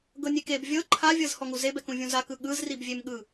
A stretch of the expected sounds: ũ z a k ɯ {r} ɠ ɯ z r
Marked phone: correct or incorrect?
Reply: incorrect